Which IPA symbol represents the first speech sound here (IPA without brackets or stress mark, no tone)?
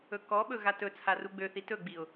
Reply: ɵ